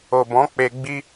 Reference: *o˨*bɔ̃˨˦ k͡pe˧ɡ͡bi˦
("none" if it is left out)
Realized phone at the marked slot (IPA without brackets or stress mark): o˨